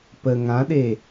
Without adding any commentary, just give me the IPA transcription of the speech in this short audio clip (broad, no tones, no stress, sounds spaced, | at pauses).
p ə ŋ ã ɗ e